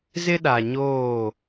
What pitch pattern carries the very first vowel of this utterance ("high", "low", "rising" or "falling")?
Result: high